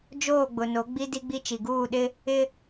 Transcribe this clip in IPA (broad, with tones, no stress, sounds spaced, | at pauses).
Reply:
d͡ʒ oː˦˨ ɡ͡b ʊ˨ n o˨˦ ɡ͡b i˦ d i˦ ɡ͡b i˦ t͡ʃ i˨ ɡ uː˦˨ ɗ ɪ˦ | ɪ˦